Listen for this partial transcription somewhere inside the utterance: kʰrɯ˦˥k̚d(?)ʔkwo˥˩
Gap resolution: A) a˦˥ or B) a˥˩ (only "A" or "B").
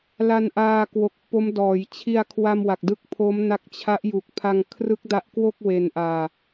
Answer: A